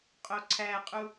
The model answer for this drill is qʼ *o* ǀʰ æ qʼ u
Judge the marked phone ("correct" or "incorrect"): correct